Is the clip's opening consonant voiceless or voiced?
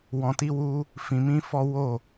voiced